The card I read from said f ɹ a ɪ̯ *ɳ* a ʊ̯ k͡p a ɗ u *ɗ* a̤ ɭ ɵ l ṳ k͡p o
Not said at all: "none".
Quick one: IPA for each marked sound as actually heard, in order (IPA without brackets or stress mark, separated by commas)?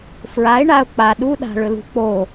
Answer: ɳ, ɗ